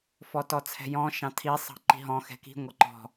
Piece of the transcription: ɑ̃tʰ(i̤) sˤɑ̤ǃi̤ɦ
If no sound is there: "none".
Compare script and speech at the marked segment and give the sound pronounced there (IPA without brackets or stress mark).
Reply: i